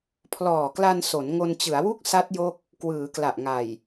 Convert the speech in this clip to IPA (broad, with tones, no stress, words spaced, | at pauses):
pʰlɔː˨˩kla˧n so˩˦n ŋo˧nt͡ɕɯ˩˦a̯wu˥˩k̚ sa˦˥t̚jo˦˥k̚ | kwɯː˩˦kla˨˩ʔŋa˨˩j